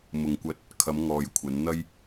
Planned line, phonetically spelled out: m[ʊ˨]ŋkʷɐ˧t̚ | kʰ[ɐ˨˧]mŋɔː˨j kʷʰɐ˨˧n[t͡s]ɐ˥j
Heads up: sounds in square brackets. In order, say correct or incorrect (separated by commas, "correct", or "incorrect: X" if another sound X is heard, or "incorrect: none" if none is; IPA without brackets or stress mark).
correct, correct, incorrect: n̪